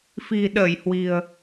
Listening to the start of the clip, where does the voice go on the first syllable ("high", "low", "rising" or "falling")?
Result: low